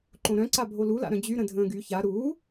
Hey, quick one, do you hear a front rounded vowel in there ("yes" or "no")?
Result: yes